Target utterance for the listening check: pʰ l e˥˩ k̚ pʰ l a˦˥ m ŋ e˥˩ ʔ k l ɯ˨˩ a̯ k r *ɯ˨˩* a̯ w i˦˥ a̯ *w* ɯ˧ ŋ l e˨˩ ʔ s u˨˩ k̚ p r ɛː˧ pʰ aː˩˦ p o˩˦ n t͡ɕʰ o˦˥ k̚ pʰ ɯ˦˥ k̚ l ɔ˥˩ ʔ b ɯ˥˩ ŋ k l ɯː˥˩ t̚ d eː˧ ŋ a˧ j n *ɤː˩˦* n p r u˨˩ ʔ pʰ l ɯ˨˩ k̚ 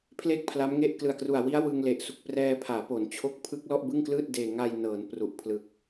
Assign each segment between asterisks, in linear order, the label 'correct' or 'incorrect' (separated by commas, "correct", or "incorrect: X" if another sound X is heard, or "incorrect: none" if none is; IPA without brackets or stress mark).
incorrect: u˨˩, correct, correct